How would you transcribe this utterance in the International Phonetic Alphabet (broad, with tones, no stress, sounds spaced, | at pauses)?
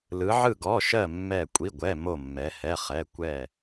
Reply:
l ɯ˩˧ ʕ ɯ˧˩ ɡ ɔ˩˧˩ ʃ ɜ˧˩ mː ɛ˧˩ kʷʼ i˩˧˩ ɡʷ ɛ˩˧˩ m o˧˩ mː ɛ˩˧ h ɛ˩˧˩ χ ɛ˩˧˩ kʷ ɛ˧˩